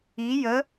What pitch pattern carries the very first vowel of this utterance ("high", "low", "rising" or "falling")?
rising